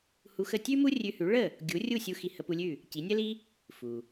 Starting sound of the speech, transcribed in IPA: h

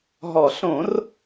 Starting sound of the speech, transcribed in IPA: ɦ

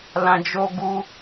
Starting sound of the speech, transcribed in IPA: l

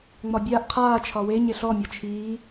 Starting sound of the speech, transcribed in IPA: ŋ͡m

